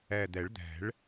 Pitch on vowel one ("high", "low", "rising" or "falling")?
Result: low